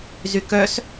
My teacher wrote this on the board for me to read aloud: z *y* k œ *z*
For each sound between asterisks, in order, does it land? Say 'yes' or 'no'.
yes, no

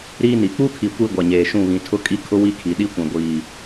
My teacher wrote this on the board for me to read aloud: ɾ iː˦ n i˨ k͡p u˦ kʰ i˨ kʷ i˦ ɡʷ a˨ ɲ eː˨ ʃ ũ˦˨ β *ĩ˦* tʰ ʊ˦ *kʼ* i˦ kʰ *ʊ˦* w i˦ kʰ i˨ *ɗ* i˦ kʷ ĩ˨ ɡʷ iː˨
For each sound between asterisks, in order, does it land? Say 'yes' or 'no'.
no, yes, yes, yes

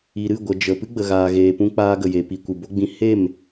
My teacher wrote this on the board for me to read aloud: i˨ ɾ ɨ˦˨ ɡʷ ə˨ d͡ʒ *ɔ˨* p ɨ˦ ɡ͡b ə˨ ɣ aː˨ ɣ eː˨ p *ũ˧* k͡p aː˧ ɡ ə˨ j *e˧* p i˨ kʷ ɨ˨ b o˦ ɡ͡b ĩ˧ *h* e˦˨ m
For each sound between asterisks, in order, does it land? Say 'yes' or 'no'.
no, yes, no, yes

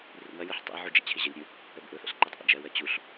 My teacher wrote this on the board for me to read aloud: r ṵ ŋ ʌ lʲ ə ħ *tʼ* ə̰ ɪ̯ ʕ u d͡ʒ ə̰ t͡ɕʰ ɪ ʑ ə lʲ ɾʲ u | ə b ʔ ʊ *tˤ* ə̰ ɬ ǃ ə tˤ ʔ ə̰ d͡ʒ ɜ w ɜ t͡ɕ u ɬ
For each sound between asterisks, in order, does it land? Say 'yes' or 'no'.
no, no

